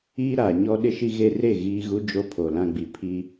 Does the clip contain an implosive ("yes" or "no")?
yes